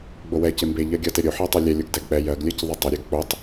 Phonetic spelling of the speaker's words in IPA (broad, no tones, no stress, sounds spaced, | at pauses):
ɡ͡b o w ɛ c e m b e ʎ ɜ ɡʲ ʌ t e ɾʲ o ħ ɜ tˤ ɜ lʲ ɛ lʲ o ɡ d ɛ ɡ k͡p ɛ j ɜ ɡ lʲ ɜ c ðˤ ɛ tˤ ʌ ɾʲ ɜ ɡ k͡p o tˤ